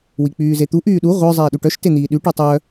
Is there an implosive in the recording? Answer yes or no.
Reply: yes